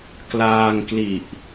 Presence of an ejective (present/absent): absent